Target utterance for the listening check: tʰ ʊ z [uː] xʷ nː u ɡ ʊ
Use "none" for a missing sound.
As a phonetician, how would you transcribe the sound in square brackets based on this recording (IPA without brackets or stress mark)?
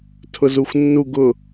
u